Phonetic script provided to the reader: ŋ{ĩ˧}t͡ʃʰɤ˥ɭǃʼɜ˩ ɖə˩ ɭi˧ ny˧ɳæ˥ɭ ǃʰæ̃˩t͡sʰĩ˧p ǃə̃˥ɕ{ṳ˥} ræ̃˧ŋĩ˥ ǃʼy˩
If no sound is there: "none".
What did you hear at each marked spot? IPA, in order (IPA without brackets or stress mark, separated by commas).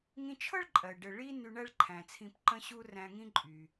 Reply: ĩ˧, u˥